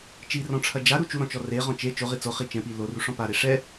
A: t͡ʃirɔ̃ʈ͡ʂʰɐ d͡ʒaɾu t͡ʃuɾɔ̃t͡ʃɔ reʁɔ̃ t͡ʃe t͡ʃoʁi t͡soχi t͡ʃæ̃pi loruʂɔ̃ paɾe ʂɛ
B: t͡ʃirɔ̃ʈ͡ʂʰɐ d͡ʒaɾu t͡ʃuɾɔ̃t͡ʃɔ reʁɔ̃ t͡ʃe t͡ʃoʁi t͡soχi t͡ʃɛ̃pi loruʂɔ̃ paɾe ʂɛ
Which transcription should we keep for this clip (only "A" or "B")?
B